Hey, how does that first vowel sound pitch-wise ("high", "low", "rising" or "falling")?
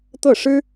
falling